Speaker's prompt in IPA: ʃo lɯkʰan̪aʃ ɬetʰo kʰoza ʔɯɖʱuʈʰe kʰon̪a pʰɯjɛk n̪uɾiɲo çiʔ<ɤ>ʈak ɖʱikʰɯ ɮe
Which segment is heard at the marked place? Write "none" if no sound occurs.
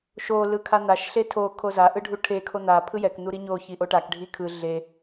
o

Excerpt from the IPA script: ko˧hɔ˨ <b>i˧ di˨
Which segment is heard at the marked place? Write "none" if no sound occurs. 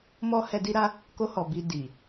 b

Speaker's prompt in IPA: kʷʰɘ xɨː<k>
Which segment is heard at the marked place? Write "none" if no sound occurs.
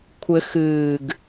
ɡ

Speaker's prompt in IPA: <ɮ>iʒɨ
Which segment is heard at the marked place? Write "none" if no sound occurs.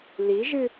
l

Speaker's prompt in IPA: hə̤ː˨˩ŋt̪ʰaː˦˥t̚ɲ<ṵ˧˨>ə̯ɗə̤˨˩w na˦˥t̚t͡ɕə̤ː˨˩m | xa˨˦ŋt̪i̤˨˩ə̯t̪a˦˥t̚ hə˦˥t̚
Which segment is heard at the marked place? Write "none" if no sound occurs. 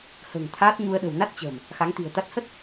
u˧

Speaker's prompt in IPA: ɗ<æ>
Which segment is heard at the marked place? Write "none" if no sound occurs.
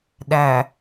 æ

